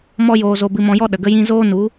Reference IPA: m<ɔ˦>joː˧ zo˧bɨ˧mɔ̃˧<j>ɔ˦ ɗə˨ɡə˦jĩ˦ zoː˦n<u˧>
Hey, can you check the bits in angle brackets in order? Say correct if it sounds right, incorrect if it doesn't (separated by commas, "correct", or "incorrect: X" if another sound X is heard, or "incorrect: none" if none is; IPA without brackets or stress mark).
correct, correct, incorrect: u˨˦